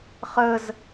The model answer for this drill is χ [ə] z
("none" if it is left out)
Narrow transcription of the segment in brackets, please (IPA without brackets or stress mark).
ə